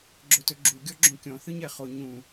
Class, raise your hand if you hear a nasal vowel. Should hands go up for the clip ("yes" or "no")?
yes